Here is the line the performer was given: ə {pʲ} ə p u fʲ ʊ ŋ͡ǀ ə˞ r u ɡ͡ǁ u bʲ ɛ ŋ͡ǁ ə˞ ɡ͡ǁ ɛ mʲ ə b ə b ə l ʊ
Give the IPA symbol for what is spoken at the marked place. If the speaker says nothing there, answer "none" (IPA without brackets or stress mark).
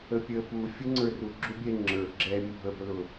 pʲ